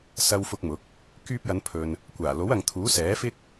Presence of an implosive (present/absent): absent